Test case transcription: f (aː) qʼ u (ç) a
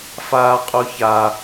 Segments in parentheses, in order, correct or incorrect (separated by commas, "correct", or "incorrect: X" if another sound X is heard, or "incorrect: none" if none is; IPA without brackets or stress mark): correct, correct